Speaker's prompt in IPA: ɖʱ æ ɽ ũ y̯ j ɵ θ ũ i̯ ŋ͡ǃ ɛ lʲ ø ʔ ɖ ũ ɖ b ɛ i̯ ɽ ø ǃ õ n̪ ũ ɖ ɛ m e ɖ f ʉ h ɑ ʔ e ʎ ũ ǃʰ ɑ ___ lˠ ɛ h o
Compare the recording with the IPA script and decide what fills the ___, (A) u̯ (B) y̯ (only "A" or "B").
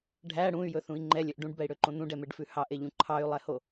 B